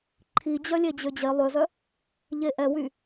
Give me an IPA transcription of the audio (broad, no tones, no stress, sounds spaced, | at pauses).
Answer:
ǃʰ i d͡ʑ œ lʲ e d͡ʑ ø d͡ʑ e lˠ ø z œ | ʎ e ʔ ɛ w y